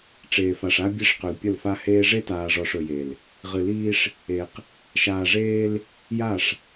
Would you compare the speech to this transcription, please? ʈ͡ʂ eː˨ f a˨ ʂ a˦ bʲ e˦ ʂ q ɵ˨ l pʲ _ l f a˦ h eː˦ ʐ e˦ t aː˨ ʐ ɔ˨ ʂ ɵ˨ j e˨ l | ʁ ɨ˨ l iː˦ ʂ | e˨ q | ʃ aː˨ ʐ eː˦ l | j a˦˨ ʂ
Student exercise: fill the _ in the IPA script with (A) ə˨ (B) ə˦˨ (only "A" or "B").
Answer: B